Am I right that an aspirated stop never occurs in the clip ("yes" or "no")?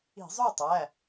yes